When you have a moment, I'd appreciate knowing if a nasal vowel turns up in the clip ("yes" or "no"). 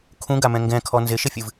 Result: yes